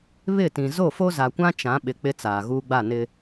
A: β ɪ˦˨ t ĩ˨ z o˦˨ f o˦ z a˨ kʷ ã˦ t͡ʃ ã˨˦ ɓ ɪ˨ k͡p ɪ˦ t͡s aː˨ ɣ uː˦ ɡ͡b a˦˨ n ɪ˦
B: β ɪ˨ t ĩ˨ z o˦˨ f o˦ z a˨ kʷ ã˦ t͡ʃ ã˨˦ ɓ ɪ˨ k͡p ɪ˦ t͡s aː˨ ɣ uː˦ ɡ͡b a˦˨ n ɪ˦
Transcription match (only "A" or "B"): A